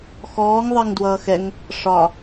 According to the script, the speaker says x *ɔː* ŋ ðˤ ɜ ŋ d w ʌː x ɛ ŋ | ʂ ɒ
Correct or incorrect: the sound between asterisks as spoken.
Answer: correct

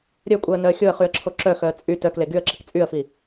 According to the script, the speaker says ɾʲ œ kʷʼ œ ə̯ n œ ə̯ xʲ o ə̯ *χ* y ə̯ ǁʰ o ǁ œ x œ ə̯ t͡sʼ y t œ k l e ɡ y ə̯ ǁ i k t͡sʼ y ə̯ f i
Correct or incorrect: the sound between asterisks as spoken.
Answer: correct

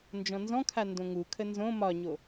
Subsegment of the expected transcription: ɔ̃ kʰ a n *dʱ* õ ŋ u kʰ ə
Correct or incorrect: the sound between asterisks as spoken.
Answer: incorrect: d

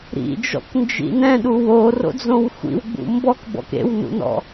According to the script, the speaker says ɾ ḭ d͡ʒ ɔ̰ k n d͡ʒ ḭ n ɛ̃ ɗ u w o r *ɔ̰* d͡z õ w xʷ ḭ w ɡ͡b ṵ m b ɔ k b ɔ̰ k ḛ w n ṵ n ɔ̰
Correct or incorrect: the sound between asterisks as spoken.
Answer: incorrect: o̰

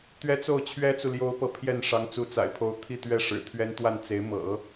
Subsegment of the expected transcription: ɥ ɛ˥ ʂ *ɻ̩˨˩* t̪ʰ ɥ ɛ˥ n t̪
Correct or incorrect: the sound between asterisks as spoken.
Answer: correct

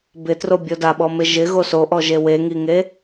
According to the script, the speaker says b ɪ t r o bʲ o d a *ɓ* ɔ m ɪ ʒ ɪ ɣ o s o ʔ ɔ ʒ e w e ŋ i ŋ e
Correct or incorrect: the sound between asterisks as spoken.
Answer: correct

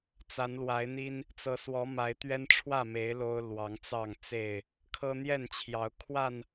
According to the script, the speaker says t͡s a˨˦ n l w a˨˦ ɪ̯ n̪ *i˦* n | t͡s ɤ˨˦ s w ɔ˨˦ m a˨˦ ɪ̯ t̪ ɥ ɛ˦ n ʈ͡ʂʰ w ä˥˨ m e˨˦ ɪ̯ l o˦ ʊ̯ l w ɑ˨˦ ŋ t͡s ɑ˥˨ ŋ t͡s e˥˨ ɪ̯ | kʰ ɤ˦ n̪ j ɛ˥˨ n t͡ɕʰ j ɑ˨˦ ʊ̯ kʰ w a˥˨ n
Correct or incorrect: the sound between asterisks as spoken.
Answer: correct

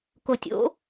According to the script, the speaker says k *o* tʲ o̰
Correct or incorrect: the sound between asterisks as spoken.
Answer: correct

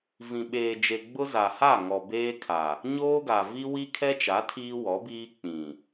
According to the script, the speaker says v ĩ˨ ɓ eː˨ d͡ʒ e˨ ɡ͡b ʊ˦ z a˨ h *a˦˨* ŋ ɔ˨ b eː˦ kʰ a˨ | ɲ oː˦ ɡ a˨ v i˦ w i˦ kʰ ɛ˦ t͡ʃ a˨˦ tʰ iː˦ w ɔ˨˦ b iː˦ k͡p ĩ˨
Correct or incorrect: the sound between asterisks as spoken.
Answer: correct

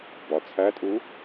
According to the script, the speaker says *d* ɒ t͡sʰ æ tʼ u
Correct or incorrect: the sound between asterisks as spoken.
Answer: incorrect: b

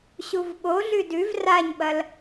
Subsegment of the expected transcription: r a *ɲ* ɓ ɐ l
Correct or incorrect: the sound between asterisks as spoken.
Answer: correct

